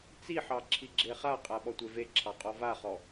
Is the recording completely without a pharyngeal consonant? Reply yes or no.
no